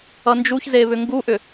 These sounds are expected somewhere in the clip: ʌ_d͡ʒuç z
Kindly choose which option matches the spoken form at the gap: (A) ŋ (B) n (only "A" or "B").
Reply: B